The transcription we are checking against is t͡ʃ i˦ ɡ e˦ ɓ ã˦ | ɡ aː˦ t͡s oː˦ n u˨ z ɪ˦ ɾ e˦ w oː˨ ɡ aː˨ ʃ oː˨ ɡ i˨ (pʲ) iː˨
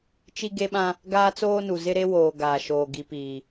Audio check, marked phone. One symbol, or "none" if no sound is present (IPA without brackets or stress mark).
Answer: p